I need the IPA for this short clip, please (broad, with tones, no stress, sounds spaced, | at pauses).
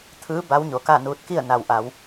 t̪ʰ ɯː˧˥ b a˧˥ w ɲ o˩˧ k a˥˨ n uː˧ t̚ k i˥˨ ə̯ n a˩ w ʔ a˩˧ w